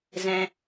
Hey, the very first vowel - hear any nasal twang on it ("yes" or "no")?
yes